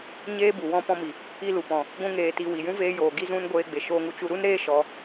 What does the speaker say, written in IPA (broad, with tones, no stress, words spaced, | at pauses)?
ɲeː˦ bu˨ wɔ̃˧pɔ̃˧mi˨ | i˦lu˨pɔ̃˨ | ɡʷũ˦ŋeː˧ti˧ wi˨jũ˦ veː˧joː˨ ɡi˦zũ˦n ɡʷeː˧ɡ͡be˨ʃoː˧ŋu˧ t͡ʃu˧ɾu˦nɾeː˦ ʃɔ˧